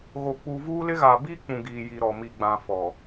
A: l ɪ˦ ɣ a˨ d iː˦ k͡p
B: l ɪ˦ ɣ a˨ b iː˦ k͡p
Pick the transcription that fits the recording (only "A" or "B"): B